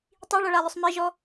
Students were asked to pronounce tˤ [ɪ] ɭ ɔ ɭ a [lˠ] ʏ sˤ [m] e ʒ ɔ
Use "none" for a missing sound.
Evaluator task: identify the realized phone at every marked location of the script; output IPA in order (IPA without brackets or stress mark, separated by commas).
i, lˠ, m